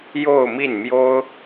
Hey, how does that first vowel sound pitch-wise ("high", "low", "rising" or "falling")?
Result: falling